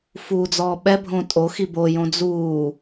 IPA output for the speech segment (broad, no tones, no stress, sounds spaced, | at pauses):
f uː d͡z ɔː ɓ ɛ bʱ õ tʼ o x i b o j õ d͡z uː